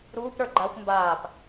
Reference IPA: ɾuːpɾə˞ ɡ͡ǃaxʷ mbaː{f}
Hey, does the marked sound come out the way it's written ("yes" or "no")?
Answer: no